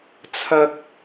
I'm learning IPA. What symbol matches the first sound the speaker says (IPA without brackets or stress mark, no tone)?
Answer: t͡sʰ